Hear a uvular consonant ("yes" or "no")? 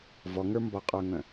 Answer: yes